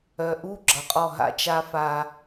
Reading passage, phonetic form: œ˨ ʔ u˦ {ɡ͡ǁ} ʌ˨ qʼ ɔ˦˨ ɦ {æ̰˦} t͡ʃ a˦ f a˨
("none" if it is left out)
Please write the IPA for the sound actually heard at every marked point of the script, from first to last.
ɡ͡ǁ, a̰˦

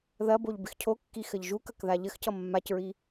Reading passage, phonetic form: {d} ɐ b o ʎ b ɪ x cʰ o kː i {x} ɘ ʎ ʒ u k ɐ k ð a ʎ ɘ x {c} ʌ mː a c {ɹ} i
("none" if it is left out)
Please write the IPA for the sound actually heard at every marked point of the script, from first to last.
ð, x, c, ɹ

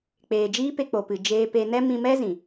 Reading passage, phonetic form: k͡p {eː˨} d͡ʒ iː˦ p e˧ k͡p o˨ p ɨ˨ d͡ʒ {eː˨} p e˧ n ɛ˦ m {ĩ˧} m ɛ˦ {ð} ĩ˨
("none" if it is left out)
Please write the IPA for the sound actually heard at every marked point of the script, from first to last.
eː˨, eː˧, ĩ˧, z

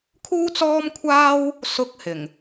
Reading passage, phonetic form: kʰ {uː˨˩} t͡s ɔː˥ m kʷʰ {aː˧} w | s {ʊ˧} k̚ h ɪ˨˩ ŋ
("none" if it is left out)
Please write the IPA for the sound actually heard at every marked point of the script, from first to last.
uː˥, aː˥, ʊ˧

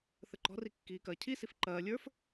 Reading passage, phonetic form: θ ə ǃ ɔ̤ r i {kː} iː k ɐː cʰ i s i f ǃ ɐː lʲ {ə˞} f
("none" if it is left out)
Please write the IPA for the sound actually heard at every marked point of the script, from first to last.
kː, ə˞

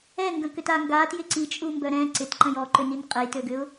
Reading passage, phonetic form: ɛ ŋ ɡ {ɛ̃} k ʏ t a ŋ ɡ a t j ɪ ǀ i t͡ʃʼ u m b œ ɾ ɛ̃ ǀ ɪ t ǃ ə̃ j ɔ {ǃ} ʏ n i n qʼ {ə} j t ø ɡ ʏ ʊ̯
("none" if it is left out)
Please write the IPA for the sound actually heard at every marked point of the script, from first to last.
ə̃, ǃ, ə

